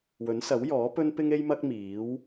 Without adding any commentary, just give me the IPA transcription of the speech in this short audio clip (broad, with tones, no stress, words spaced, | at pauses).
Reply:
wɵ˨˥nsɐ˨˥wjɔː˨˥ pɵ˥npɪ˥ŋe˥jmɐ˥k̚ miː˨˥w